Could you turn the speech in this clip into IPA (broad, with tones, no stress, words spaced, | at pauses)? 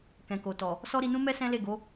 kɛ̃˨ko˨tɔ˨ | sɔ˦ɾi˧nũ˦mɛ˦ sɛ̃˦le˦˨ɡo˨˦